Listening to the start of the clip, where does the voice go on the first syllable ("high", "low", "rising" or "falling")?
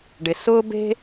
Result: low